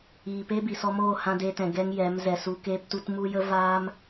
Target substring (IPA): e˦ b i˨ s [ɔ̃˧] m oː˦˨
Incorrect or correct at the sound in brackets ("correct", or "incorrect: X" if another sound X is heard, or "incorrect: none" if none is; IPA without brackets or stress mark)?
incorrect: ɔ˧